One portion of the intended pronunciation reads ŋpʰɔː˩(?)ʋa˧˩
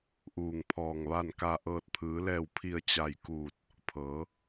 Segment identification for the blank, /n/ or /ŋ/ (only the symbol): ŋ